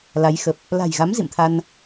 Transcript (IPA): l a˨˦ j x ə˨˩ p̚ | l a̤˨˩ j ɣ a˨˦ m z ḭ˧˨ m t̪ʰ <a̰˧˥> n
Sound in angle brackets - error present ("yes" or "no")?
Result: yes